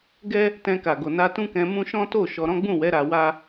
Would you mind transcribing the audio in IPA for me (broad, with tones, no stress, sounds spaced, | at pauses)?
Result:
ɡ ɛ˦ | t ɛ̃˧ k a˨ ɡ o˨ n a˧ t ũ˦ k ɛ̃˧ m ũ˦ ʃ ɔ̃˦ t o˦˨ ʃ ɔ˧ ɾ ɔ̃˦ ɡ͡b ũ˦˨ w ɛ˨˦ ɾ a˧ w a˦